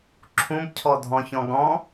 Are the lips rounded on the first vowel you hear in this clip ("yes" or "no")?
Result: yes